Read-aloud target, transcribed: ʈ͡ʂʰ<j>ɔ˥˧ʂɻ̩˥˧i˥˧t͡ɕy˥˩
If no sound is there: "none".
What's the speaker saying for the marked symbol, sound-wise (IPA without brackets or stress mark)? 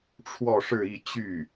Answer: w